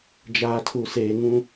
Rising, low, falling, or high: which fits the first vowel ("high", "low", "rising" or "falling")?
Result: low